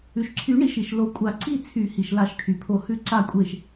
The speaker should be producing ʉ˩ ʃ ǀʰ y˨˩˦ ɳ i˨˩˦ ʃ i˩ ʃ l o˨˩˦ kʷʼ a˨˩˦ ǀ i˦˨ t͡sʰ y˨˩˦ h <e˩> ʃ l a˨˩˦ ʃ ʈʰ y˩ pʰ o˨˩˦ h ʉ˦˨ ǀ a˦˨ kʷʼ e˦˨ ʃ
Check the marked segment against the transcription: incorrect: i˩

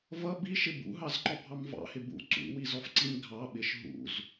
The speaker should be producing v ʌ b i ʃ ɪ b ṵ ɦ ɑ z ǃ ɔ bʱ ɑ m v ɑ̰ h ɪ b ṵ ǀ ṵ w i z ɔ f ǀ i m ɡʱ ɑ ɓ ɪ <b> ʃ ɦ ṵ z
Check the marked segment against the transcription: incorrect: none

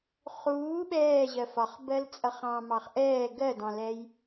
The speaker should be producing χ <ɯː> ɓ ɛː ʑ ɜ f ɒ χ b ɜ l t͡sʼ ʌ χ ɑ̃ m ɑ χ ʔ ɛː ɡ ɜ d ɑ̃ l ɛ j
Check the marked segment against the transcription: incorrect: uː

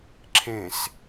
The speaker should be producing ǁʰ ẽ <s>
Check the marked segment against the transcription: correct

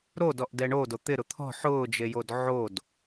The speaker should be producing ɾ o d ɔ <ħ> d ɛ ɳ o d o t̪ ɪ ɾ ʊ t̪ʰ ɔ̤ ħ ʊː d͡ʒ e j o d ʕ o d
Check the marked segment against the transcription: incorrect: ʔ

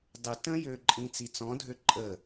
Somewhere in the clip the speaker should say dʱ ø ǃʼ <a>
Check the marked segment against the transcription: incorrect: ə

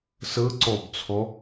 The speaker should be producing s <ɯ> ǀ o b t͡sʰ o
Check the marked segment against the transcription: correct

